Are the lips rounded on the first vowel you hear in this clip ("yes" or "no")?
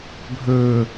yes